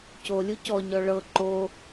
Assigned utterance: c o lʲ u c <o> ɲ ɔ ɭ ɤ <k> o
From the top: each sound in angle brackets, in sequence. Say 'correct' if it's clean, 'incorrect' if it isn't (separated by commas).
incorrect, incorrect